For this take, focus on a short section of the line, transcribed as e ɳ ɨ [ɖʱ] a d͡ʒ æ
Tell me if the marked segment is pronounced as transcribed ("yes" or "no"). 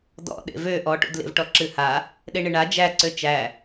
no